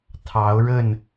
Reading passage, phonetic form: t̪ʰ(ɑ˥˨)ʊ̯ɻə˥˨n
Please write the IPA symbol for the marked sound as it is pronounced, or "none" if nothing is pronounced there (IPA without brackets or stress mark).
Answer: ɑ˨˦